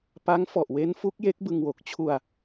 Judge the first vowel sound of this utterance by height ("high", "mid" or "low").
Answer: low